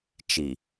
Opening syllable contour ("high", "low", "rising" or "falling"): low